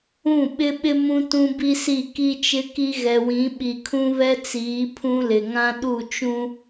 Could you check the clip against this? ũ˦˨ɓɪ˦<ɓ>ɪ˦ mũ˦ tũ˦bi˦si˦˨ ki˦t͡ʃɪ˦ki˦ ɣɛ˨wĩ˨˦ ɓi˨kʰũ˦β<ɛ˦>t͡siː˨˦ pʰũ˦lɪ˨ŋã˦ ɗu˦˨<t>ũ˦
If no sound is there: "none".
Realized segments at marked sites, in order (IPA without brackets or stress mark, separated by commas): ɓ, ɛ˦, t͡ʃ